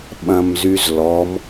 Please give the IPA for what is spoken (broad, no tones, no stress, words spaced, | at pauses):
ɓɐ̃mzyzlɔm